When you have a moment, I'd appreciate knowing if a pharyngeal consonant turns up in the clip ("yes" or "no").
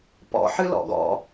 yes